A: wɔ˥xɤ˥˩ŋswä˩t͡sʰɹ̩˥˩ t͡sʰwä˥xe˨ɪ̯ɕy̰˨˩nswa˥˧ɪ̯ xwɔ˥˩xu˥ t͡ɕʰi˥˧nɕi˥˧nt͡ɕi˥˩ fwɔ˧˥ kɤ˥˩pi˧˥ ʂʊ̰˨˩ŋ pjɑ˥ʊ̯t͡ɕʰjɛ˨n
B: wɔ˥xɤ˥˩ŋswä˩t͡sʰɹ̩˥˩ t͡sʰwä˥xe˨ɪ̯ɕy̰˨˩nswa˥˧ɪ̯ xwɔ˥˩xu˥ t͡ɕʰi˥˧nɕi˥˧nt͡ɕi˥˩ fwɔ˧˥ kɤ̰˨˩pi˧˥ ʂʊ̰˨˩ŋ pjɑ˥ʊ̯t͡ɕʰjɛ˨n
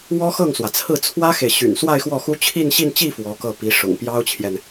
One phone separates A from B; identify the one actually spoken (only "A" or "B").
A